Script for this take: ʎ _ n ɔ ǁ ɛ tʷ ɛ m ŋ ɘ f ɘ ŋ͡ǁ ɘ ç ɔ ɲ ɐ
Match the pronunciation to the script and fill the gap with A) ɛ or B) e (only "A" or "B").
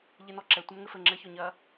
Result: B